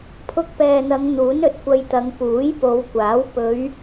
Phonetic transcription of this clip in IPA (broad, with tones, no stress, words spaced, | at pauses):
pʰʊ˧k̚pɛː˨n̪ɐ˨˧ŋ n̪uː˨˥nɵ˨˥t̚kʷɐ˧jt̪ɐ˨˧ŋ puː˨˥jpo˨˧wkʷaː˨˥w pɵ˨˧ɥ